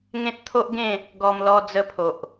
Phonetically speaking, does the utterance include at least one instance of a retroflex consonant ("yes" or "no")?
no